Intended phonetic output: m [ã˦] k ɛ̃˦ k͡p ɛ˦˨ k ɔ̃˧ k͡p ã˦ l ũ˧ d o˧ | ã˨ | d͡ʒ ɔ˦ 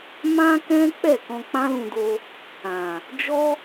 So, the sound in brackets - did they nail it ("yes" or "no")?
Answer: yes